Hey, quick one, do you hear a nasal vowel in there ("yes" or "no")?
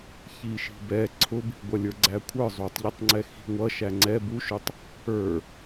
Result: no